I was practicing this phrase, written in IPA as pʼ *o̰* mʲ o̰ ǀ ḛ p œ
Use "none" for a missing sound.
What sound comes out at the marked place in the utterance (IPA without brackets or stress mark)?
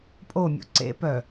o